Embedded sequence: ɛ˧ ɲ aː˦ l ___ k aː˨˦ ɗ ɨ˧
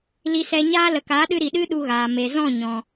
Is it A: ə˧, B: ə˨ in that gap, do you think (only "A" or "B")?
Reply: B